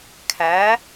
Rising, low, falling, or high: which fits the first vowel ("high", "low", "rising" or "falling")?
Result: rising